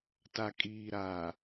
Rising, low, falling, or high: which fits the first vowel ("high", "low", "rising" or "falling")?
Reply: low